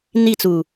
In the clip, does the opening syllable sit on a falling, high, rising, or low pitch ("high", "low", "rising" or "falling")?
falling